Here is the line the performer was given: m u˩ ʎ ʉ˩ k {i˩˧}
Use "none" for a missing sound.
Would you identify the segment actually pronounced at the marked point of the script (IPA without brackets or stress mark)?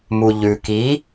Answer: i˩˧